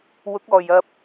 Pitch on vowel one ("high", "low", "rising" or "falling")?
rising